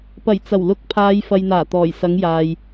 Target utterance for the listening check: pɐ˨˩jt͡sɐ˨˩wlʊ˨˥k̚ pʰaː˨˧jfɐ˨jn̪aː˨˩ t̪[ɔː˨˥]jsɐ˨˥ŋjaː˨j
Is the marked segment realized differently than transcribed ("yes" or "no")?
yes